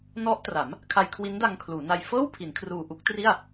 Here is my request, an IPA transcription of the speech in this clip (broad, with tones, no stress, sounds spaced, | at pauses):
n ɔ˦˥ ʔ t r a˩˦ m | kʰ a˧ j kʰ w i˦˥ n d a˧ ŋ kʰ l uː˩˦ n a˧ j f ɤː˥˩ w pʰ i˩˦ n kʰ r uː˨˩ ʔ u˦˥ k̚ t r i˥˩ a̯